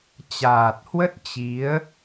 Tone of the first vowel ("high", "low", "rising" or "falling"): low